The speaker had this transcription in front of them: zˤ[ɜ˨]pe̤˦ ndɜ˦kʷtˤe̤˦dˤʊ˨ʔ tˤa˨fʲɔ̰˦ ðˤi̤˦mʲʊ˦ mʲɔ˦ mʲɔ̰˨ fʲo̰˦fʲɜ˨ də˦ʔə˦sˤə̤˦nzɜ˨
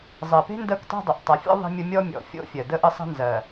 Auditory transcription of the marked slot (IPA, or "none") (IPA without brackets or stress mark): ɜ˨